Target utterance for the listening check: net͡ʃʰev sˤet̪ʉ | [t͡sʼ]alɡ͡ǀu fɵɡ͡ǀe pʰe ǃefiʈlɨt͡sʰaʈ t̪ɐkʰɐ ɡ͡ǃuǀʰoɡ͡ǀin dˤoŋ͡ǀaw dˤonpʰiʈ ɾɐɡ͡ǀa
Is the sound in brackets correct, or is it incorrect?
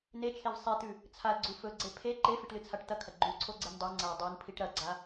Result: incorrect